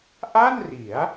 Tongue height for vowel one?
low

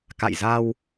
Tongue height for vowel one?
low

